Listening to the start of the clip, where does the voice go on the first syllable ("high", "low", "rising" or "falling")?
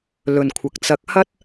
low